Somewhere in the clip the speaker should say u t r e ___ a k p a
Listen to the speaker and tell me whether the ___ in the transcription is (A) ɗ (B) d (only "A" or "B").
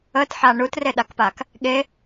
A